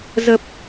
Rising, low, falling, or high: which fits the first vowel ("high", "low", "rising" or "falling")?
low